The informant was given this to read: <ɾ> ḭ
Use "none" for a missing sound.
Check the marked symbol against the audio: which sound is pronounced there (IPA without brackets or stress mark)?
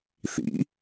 θ